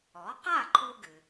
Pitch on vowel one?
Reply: rising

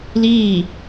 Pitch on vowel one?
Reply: falling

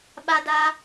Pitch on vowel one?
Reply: high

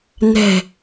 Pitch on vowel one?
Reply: low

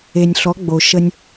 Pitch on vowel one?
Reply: low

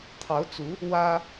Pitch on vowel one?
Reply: rising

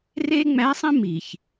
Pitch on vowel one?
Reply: high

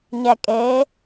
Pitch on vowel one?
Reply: low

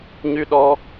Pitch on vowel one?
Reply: high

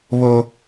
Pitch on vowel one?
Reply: high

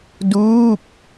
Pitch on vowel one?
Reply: falling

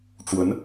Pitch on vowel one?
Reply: rising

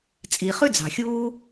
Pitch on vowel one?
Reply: low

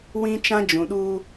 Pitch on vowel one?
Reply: high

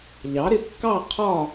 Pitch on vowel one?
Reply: rising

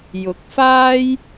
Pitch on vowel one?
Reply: rising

